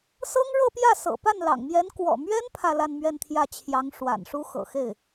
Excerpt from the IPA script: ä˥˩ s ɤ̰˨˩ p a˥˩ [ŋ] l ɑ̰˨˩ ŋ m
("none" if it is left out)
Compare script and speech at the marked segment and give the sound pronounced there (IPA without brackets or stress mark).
n